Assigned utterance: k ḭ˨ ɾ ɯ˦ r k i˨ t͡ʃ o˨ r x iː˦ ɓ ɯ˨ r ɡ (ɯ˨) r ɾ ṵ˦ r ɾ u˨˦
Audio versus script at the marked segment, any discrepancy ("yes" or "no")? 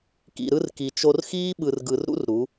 no